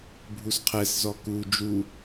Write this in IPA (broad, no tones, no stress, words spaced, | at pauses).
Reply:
bʱusqʰɛszɔ ku d͡ʒu